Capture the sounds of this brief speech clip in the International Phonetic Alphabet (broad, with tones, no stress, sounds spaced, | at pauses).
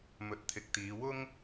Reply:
m ɵ˨˥ t̚ t̪ʰ ɪ˨˥ k̚ t̪ iː˨˧ w ʊ˥ ŋ